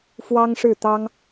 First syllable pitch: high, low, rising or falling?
high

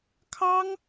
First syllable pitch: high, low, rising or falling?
high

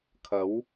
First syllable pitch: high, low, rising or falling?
rising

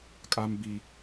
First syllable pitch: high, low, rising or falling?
high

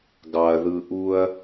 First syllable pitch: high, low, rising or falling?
low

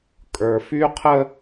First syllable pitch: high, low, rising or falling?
low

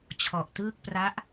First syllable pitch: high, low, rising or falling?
low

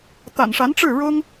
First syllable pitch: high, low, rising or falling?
low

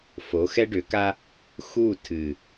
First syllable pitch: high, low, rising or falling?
rising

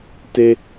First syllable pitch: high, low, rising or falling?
high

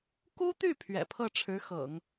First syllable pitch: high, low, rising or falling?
high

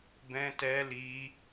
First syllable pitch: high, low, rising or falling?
high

